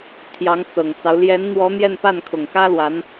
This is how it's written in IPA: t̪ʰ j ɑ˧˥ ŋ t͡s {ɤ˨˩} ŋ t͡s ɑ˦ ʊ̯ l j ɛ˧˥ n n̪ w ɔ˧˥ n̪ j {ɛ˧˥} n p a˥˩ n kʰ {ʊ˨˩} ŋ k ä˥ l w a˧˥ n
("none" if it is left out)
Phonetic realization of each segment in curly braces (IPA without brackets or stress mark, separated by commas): ɤ˨˩, ɛ˥˧, ʊ˨˩